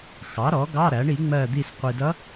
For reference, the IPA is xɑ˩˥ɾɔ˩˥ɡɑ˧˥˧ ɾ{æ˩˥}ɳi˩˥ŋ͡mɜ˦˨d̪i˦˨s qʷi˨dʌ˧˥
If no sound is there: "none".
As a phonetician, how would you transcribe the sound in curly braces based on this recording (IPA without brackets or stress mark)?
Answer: æ˩˥